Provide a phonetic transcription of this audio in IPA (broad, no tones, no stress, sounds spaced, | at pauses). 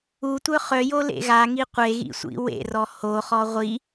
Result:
u tʷ œ χ œ j o l ḛ ɣ a ŋ i qʷ e ɣ ḭ sʷ ḭ w ḛ r ɔ h o χ ɔ ʁʷ i